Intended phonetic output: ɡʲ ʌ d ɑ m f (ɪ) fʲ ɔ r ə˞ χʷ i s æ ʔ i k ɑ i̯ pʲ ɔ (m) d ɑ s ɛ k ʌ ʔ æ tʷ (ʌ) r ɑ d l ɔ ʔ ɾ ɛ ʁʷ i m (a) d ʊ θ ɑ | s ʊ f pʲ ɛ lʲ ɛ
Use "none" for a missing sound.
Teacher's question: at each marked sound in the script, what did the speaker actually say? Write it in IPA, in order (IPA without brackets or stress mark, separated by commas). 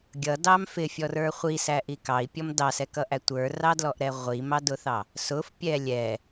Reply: ɪ, m, ə˞, ɑ